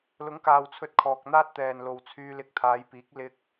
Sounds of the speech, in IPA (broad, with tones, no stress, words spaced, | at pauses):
lʊ˨˥ŋkaː˨wt͡sʰɵ˧t̚ kʰɔː˨k̚n̪aː˥t̚t̪ɛː˨nlo˨w t͡sʰyː˧lɪ˧k̚ t̪ʰaː˨˧jpiː˨˥k̚ lɪ˧k̚